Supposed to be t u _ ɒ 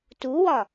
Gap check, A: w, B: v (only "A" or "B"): A